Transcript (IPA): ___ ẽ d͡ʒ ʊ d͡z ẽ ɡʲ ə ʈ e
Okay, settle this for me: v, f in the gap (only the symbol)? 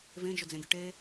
v